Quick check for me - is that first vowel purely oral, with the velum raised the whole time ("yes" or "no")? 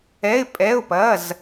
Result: yes